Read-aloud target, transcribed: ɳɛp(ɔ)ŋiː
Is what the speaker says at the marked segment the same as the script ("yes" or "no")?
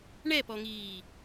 yes